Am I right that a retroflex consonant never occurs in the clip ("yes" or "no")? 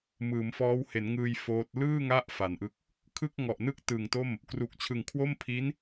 yes